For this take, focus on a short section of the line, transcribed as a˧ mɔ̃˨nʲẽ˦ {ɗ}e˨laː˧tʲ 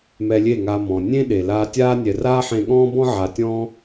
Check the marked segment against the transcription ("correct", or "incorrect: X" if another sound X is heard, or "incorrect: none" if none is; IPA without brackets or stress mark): correct